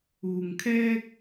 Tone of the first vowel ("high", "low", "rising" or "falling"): low